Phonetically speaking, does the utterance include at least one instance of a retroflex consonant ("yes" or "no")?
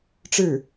yes